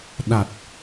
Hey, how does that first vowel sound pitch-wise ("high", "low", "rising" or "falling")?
low